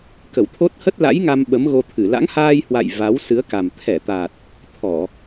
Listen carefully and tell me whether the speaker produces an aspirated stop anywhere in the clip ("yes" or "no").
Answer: yes